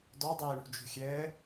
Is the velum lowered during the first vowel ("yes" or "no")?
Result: no